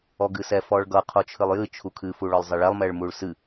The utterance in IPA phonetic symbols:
ɔ ɡ ɨ s ɛ f ɔ ɭ ɡ ʌ qʰ o t͡ʃʰ ɨ lˠ j ɨ t͡ʃʰ u kʰ ɨ f u ɭ ɔ lˠ zˤ ɛ ɭ ɛ lˠ m ɛ ɭ m u ɭ s ɨ

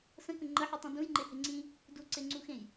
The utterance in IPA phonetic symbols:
s ə̃ k ə̃ ŋ͡ǃ ə ħ u tˤ ĩ d ũ j ŋ͡ǃ e h e ŋ͡ǀ ĩ | d u ǀ e ŋ͡ǀ u x ẽ j

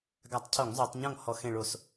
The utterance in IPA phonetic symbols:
ɡ a˧˩˧ tˤ cʰ o˧˩˧ ŋ zˤ o˧˩˧ tˤ ɲ ɔ̃˥˩ ŋ h ɔ˧˩ x ẽ˧˩ ɭ o˧˩˧ s

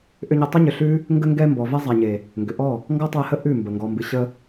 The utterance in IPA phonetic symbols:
ʔ ʏ˧ ɲ ə˧ tˤ ə˦ ɲ ʏ˨ ɬ ʉ˦ | ŋ ɡ ə˧ ŋ ɡ ɛ˧ m b ɔ˨ v ɛ˧ zˤ a˨ ɲ e˨ | ŋ ɡ ʏ˨ ʔ ɔ˦˨ | ŋ ɡ ɔ˦ tˤ ɛ˧ h ə˦ ʔ ʉ˦˨ m b ə˨ ŋ ɡ ɔ˨ m b ɨ˨ ɕ ə˧

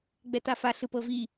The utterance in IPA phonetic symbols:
ɡ͡b ɛ t a f a ɬ ɯ p ɤ v i

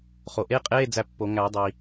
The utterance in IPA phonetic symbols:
χ o˩ ʔ e˧˥˧ qʼ eː˧˥˧ d͡z æ˦˨ pː o˨˩˦ ŋ æ˨˩˦ dˤ i˩

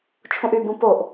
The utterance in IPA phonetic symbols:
t͡ʃʰ ũ ʔ y b ũ p o ʔ

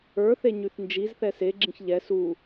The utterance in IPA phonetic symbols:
ə˞ θ e ɲ y θ n d͡ʒ i z θ ɛ s e ɡ͡ǁ ĩ ç ʎ ɛ s u

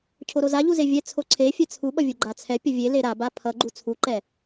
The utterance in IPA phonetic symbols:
cʰ o ɾ o z a ʎ u z e vʲ ɛ t͡sʰ o ǀʰ e fʲ ɛ t͡sʰ u ɓ ʌ vʲ u ɡ͡ǃ a t͡sʰ ɛ pʲ ʌ vʲ e l e ɾ a b a pʰ ʌ ɡ͡ǃ u t͡sʰ u ǃ ɛ

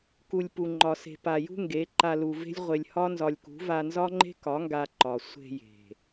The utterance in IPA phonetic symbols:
k u˨ lʲ p u˨ ŋ͡ǃ ɒ˨ s e̤˨ p a˨ j ṳ˦ ŋ ɡ e˨˦ ǃ a˧ l u˨ v e̤˦ lʲ ʁʷ e˧ lʲ h ɒ˦ n z ɒ˧ lʲ k ṳ˨˦ v a˧ n z ɒ˦ ŋ͡ǃ e̤˦ k ɒ˨˦ ŋ ɡ a˧ ǃ ɒ˨ sʷ e̤˧ j e̤˨

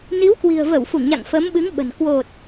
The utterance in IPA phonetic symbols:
n i˨˦ w k w i̤˨˩ ə̯ v ə˧˩ w f u˧˩ ŋ ɲ a̰˧˨ ŋ f əː˨˦ m ɓ ɨ˨˦ ŋ ɓ ə̤˨˩ n k w o˨˩ t̚

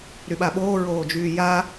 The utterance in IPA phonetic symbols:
ɾ y ɓ a ɓ oː ɹ oː d͡ʒ yː j a

